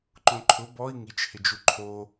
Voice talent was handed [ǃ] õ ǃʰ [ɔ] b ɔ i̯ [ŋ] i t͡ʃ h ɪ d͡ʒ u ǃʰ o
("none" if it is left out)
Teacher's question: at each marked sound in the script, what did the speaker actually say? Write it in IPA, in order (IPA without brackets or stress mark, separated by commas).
ǃ, ʊ, ŋ